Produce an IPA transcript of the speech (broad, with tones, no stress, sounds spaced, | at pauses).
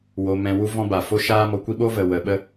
w o˧ m ɛ̃˧ w u˦ v ɔ̃˦ b a˨ f o˦ ʃ aː˦ m ɔ˧ kʷ i˦ ɓ o˦ v ə˨ w ə˨ ɓ ə˦